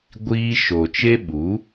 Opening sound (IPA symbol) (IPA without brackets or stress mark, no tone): ɡʷ